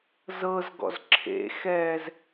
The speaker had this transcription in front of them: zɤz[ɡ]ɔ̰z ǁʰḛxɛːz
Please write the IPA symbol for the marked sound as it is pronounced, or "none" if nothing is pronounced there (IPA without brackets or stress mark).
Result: ɡ